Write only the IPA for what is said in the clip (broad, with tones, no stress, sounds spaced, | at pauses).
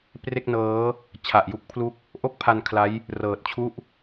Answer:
p r e˥˩ k̚ n ɤː˦˥ | t͡ɕʰ a˨˩ ʔ j u˥˩ k̚ pʰ l u˥˩ k̚ | ʔ o˥˩ k̚ pʰ a˧ n kʰ l a˦˥ j | r ɤː˨˩ t̚ t͡ɕʰ u˥˩ ʔ